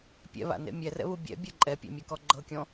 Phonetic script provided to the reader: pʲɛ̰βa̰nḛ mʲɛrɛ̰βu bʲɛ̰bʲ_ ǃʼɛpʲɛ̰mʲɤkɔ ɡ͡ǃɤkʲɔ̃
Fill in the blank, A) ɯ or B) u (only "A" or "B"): A